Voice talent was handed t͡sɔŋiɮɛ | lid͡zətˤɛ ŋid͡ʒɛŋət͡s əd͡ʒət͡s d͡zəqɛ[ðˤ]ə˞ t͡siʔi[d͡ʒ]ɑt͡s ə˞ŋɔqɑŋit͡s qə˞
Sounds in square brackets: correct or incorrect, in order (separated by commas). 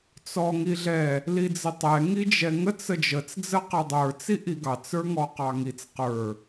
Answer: incorrect, incorrect